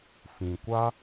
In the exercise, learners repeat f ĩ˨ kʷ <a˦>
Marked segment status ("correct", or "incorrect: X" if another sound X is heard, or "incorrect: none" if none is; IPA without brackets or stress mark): correct